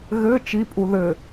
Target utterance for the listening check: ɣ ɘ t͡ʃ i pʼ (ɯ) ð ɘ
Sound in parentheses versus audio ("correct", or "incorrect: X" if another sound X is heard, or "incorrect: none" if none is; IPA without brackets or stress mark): incorrect: u